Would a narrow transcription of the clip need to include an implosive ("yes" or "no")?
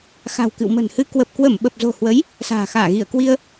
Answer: yes